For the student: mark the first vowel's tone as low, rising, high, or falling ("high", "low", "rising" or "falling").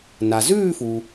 low